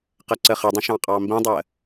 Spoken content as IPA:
qɐǀəχədˤə̃ ʃɑ̃qʼɑmbĩdˤɜ

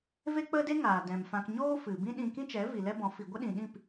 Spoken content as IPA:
ve˦k͡pə˦de˦ ŋaː˨dɛ̃˨mfã˧k ɲoː˦ fɨ˨ bĩ˦ɗĩ˧ kĩ˦t͡ʃɛ˨˦ vi˨lɛ˦bɔ̃˨˦ fi˨ ɡʷə˦ɗĩ˨ɗĩ˦˨p

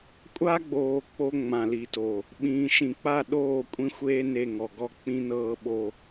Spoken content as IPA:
kʷʼa˦ɡ͡boː˨ k͡po˦ ŋ͡mã˨li˨to˨ | ɓĩː˨ʃĩ˨k͡pa˦˨ ɗoː˦˨kʷʼĩ˦xʷeː˦ ne˦˨ŋɔ˨ɡɔ˦˨ k͡pĩ˦nɤː˦ɓo˦

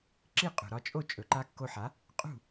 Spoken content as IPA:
ǁi˥˩qʼṳ˩ɾɒ˧t͡ʃʼo˥˩ t͡ʃʼɵ˩ǃa˧kːo˧ħa˩˥ | qʼṳ˥˩

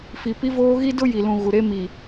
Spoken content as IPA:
fi˨pi˦voː˦ ɣi˦dʊ˦ji˨lũ˨ ɣu˨ɾe˦mi˨

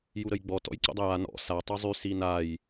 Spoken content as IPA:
juɾəjɡ͡bɔ tɔ̰jǀə̰dˤəja nɔ̰ sa tˤozˤy sinaj

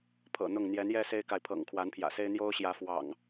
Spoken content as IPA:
pʰɤ̰˨˩n̪ʊ˥˨ŋ n̪jɛ˨˦njɛ˦se˦ɪ̯ka˨ɪ̯ pʰɤ̰˨˩ŋkʰwa˨˦npʰjä̰˨˩se˦ɪ̯ n̪jo˦ʊ̯ɕjä˨˦ fwɑ̰˨˩ŋ

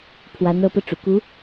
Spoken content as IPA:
pʰwa˧˥nɤ˧˥pɤ˧ ʈ͡ʂṵ˨˩ku˧˥

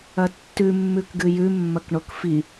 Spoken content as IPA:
ɐtːʉ mːʉkɡɨjʉ mːɐkɳokfi

